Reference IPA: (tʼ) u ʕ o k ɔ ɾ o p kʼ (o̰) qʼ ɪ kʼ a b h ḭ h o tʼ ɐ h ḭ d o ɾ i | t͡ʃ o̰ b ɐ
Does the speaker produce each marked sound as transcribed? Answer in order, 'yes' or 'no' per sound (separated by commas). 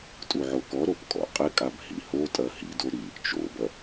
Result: yes, no